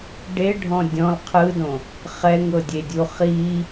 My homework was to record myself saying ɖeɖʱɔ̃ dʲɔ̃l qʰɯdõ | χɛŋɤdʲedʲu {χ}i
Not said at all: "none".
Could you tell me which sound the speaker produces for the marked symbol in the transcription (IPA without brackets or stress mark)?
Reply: χ